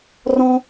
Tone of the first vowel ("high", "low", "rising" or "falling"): high